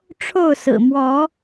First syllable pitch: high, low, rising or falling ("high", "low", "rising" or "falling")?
falling